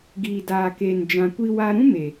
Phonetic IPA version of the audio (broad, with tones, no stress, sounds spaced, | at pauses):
ɡ iː˨ d aː˨ k eː˨ n d͡ʒ ã˨ kʷ i˧ w a˧ ɾ ũ˦ m e˨